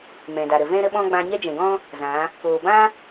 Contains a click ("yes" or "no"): no